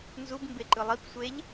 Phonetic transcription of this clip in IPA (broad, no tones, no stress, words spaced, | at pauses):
nzub mbeǃɯlˠip sʷeʎ